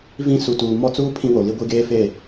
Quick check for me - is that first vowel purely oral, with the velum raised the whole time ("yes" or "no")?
no